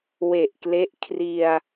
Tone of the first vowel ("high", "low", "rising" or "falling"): low